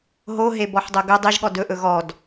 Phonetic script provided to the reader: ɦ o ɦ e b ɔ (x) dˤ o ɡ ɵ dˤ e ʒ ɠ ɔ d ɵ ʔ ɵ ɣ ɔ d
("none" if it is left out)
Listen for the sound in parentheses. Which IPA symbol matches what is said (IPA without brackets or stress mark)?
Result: ħ